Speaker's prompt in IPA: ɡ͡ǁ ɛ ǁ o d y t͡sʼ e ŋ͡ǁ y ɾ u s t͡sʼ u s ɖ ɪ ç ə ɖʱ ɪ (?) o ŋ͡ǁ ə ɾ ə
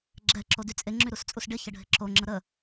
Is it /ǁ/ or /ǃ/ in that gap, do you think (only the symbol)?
ǁ